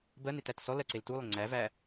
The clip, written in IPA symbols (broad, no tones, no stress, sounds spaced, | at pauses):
b ɜ n e t æ t s ɔ l ɜ ǀ e l t u lˠ ɪ ŋ͡ǀ æ v æ